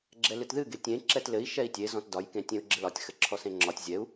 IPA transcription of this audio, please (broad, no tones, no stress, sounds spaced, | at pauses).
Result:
ɡ͡ǁ ɛ l ɨ t ð ɨ ɡ e tʲ ẽ ǁ ɛ t l ɘ i̯ ʃ ɛ i̯ tʲ e z ɔ̃ t d ɒ j k ẽ tʲ ẽ u̯ ɡ͡ǁ ɘ l ɒ tʲ x ɘ ǁʰ ɔ s ẽ ŋ͡ǁ ɒ tʲ zʲ ɛ u̯